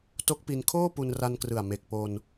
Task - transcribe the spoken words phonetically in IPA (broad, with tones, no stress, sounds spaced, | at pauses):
t o˦˥ k̚ p i˧ n kʰ oː˥˩ p u˧ n r a˧ n k r ɯ˨˩ a̯ m e˨˩ k̚ p o˧ n